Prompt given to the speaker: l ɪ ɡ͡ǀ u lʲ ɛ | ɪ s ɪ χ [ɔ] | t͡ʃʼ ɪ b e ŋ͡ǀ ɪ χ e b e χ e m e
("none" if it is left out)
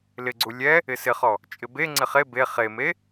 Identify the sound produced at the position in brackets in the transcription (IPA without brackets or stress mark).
ɔ